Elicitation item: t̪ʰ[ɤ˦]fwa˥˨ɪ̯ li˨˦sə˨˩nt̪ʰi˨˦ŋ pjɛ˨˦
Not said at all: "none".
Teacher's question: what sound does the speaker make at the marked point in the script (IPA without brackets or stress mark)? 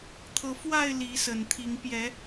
ɤ˨˦